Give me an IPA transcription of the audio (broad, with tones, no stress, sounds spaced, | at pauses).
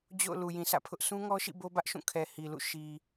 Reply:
d͡ʑ o̰˦˨ ʊ̯ l u˨ j ĩ˨ s ä̰˦˨ pʰ ʊ˦ ʔ s ũ˦ ŋ ɔ˦ ʃ ḭ˦˨ b o˦ b ä˦ ʔ ʃ ũ˦˨ kʰ ɛ˨ h i˨ l ṵ˦˨ ʃ i˨